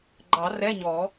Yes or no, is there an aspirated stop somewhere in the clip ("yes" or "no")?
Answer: no